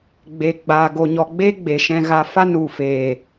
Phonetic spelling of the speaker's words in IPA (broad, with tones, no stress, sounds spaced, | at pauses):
ɡ͡b e˧ ɡ͡b aː˧ ɡ o˧ ɲ ɔ˧ ɡ͡b e˦ ɡ͡b e˨ ʃ ɛ̃˧ ɣ a˧ f a˦ n u˨ f eː˨